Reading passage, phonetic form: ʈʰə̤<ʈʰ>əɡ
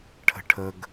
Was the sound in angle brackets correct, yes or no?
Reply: yes